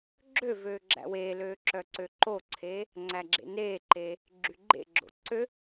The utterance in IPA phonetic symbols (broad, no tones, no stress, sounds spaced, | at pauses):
ɡ͡ǁ ø v øː ɡ͡ǁ æ̰ w eː l øː ǁ œ ǀ ø ǃ o ǀʰ eː | ŋ͡ǀ æ ɡ͡ǁ ḛ n eː ǃ eː | ɡ͡ǁ y ɡ͡ǃ ḛ ɡ͡ǁ o̰ ǀ ø